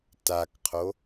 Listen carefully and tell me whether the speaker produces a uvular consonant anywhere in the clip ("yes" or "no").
yes